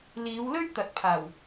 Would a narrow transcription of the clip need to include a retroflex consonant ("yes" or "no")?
no